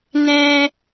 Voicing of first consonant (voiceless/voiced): voiced